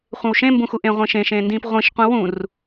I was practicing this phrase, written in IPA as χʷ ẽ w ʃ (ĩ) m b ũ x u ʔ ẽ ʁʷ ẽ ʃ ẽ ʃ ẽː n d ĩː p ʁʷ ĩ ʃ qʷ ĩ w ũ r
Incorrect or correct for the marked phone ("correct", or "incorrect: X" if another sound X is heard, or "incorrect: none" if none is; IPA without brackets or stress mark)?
incorrect: ẽ